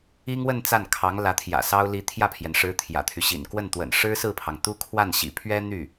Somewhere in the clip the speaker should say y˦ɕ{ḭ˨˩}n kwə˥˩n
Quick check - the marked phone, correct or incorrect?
correct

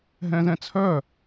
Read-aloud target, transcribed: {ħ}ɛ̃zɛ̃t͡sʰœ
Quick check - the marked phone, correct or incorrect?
incorrect: ɦ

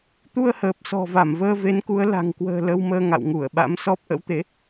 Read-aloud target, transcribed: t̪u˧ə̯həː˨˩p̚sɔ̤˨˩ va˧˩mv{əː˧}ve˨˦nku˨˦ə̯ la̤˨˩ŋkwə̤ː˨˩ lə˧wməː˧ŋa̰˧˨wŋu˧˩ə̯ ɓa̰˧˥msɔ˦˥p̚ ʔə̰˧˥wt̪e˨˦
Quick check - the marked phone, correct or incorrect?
correct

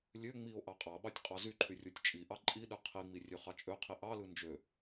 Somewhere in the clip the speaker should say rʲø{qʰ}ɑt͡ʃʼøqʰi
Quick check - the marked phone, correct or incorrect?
incorrect: χ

